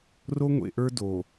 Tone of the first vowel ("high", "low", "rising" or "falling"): high